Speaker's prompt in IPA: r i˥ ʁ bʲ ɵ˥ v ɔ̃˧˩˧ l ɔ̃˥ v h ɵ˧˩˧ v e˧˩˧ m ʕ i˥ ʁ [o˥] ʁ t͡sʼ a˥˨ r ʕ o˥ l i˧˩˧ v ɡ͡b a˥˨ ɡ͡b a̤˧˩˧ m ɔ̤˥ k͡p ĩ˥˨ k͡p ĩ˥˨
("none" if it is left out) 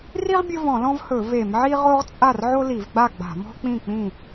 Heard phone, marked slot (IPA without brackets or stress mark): o˥